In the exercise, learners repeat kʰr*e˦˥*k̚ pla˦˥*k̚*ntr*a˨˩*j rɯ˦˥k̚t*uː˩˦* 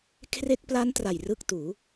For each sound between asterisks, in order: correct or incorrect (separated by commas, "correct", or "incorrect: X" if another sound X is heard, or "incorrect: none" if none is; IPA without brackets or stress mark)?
incorrect: e˥˩, incorrect: none, correct, correct